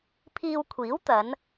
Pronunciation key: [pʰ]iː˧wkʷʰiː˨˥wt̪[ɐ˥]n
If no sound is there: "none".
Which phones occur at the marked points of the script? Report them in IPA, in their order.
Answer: pʰ, ɐ˨˧

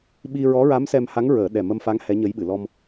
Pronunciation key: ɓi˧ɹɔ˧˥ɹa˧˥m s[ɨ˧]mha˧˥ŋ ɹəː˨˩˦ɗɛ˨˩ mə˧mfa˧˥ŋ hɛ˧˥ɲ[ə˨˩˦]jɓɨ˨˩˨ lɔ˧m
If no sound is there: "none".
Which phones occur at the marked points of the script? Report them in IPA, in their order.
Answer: ɛ˧, ə˧˥

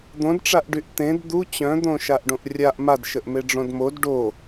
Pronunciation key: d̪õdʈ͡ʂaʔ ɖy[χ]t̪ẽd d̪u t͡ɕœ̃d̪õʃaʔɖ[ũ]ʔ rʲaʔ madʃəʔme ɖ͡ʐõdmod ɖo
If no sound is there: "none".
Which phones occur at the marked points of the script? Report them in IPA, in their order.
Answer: ʔ, õ

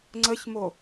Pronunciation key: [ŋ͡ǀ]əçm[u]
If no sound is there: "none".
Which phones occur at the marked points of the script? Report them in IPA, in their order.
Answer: ŋ͡ǀ, o

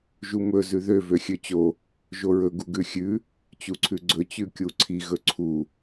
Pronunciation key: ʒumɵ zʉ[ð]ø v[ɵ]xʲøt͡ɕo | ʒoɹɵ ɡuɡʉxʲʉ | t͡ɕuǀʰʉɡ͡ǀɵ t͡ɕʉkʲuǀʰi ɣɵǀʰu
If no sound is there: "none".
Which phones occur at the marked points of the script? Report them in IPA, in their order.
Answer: ð, ø

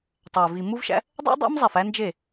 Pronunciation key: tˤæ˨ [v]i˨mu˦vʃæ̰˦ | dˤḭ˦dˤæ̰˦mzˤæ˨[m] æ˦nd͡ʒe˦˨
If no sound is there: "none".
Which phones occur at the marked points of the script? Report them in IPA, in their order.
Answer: v, f

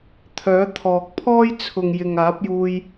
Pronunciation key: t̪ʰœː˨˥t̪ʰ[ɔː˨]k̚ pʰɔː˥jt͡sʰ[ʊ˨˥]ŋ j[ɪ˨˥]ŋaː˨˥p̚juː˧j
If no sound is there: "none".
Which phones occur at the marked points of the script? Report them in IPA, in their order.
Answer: ɔː˨, ʊ˨, ɪ˨

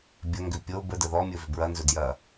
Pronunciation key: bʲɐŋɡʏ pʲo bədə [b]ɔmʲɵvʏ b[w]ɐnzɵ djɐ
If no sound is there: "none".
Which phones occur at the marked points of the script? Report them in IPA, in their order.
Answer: ð, ɹ

